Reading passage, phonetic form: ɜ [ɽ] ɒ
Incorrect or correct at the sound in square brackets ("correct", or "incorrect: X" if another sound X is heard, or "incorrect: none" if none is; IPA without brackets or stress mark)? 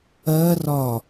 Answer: incorrect: r